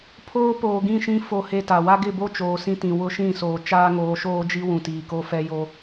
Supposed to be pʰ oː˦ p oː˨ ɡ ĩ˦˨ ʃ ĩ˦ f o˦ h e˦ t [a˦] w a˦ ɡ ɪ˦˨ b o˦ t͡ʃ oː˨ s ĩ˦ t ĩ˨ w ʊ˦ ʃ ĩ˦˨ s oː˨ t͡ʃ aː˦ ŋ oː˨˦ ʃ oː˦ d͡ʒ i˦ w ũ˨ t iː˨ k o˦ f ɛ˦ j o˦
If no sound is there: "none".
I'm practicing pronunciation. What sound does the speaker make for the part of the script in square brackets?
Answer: a˨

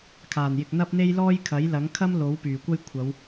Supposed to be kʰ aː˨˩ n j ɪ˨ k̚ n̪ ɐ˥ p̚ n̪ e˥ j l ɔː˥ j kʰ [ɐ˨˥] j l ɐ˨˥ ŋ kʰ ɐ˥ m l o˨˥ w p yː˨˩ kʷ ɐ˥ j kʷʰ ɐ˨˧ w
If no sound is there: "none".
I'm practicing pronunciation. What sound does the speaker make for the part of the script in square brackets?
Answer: ɐ˨˥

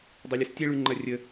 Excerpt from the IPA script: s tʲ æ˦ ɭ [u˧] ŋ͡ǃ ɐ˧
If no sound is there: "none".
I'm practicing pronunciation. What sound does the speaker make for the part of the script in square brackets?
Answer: ʉ˧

